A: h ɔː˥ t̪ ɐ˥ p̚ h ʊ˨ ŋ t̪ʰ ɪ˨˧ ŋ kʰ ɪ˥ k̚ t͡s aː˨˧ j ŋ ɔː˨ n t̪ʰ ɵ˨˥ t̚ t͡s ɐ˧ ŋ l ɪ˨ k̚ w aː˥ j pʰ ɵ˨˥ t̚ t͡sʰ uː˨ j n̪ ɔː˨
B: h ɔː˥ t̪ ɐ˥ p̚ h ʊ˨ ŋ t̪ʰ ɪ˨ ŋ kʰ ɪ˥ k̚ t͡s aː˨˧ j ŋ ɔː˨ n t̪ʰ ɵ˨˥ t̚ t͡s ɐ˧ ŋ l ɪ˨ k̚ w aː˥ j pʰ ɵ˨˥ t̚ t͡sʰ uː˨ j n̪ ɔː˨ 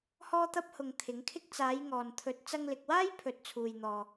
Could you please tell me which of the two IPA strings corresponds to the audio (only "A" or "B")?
A